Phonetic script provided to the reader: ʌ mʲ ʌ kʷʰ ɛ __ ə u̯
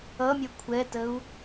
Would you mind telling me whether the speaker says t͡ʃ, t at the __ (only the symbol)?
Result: t